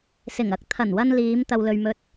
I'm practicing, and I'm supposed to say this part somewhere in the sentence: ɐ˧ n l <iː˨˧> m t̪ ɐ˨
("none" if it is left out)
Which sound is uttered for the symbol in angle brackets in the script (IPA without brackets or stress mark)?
iː˨˧